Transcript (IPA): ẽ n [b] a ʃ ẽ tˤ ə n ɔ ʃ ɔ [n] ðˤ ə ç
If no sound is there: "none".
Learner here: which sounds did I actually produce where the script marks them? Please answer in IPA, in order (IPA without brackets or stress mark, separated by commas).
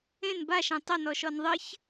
b, n